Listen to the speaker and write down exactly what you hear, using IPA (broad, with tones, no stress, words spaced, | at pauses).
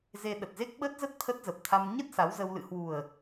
ze˧ɗə˨˩t̚ze˦˥k̚ ɓə˦˥t̚zə˦˥t̚ t̪ʰə˦˥t̚zə˨˩p̚t̪ʰa˧m ɲə˦˥t̚ sa˨˦wzə˧w lɨ̰˧˨hwu˨˩ə̯